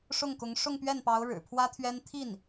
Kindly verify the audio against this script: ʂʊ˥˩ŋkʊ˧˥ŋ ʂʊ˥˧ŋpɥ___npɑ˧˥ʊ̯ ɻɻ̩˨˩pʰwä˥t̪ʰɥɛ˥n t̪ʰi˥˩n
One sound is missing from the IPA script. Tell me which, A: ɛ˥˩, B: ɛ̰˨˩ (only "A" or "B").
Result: A